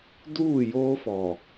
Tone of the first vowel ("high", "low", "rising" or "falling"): falling